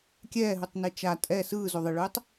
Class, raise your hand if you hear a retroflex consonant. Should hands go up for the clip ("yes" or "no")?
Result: yes